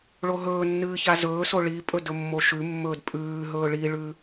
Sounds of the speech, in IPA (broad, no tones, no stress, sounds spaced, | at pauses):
ɭ o ɦ ɵː nː ɨː ç a z ɵː s o ɭ i pʼ ɵ d ɵ mː o ʃ ʉ mː ɵː d pʼ ʉː ɦ ɵː ɭ i ɭ ʉ